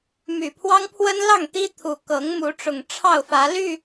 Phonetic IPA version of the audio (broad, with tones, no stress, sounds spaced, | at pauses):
m y˨˩ pʰ w ɑ˦ ŋ pʰ w ə˦ n l ɑ˥˨ ŋ t̪ i˦ t̪ʰ u˨˩ k ɤ˨˦ ŋ m u˨˦ ʈ͡ʂ ʊ˨˩ ŋ ʈ͡ʂʰ ɑ˥˨ ʊ̯ f ä˨˦ l y˥˨